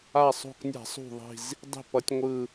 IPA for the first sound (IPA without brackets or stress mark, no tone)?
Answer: a